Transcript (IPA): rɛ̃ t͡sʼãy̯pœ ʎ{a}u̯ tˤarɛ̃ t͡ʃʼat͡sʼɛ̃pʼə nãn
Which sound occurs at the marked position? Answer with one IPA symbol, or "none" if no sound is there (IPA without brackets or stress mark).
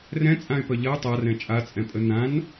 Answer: ɐ